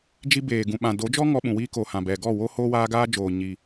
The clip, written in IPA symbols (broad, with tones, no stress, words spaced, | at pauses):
d͡ʒi˧beː˨ɡũ˨ ɓã˨do˨˦d͡ʒɔ˦ ŋɔ˧ɓũ˨wiː˧ko˨ hã˨bɛ˨ɡɔ˦˨ wo˧ hoː˦waː˦ɡaː˦d͡ʒoː˨ ɲi˨